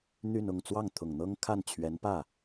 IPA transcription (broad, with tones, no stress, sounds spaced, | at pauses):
n̪ y˥˧ n ʊ˥˧ ŋ t͡s w ɑ˥˩ ŋ t̪ʰ ʊ˨˩ ŋ n̪ ɤ˥ ŋ kʰ a˥˩ n t͡ɕʰ ɥ ɛ˧˥ n p ä˥˩